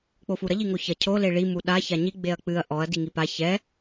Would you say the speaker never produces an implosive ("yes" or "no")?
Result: no